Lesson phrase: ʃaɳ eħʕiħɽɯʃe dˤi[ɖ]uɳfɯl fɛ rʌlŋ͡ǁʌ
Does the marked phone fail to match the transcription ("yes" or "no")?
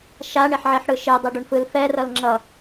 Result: no